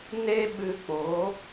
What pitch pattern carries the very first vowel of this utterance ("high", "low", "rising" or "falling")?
high